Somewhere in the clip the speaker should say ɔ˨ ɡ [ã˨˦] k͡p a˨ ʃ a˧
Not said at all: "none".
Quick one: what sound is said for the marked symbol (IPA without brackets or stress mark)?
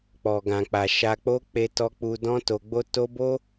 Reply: ã˨